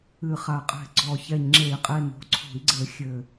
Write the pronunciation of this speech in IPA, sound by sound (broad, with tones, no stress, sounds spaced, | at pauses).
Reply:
ɨ˨˩ χ a˨˩ qʼ ɛ̤˨˩ ɡ͡ǀ ɔ˨˩ ç ɛ˨˩ ɲ ŋ͡ǁ e˧˩˧ i̯ qʼ e˨˩ n o̤˨˩ ǀʰ o̤˧˩˧ i̯ ɡ͡ǀ ɘ˧˩˧ xʲ ɘ˨˩